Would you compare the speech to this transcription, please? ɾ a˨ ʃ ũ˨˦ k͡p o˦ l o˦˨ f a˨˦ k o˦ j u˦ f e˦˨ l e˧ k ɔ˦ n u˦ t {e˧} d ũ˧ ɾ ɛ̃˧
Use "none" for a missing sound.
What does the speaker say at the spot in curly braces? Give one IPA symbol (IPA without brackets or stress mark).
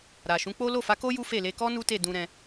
e˦˨